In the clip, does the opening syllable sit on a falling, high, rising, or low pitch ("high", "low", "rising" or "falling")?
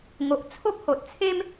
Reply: low